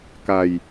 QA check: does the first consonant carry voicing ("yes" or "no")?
no